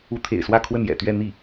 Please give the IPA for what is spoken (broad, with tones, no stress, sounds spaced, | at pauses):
u˧˥ t̪ʰ ḛ˨˩ ɪ̯ s w ä˥˧ kʰ w ə˥˩ n j ɛ̰˨˩ t̪ ɥ ɛ˥˧ n̪ i˥˩